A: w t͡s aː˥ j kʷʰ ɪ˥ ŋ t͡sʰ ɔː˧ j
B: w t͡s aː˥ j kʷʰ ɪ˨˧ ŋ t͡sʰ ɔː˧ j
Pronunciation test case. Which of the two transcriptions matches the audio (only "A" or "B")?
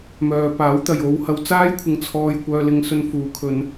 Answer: B